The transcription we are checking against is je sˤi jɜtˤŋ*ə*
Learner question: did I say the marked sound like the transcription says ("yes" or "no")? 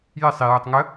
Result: yes